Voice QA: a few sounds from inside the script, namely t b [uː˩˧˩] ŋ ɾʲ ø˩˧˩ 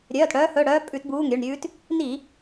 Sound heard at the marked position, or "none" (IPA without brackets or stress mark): uː˩˧˩